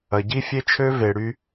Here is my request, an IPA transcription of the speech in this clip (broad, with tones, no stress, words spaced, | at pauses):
ɐ˨ ɟi˦fʲe˦t͡ʃʰø˦ ve˨ɽy˧